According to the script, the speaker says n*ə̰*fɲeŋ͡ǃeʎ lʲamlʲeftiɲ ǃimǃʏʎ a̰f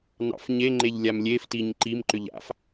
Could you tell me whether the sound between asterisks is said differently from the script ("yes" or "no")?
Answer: yes